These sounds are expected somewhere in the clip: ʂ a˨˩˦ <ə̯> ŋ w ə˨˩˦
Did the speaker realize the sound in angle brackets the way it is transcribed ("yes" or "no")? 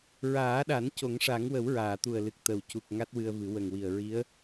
no